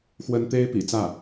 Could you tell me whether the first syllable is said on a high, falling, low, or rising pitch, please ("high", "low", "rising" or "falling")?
high